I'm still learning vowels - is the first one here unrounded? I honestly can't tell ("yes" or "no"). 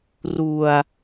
no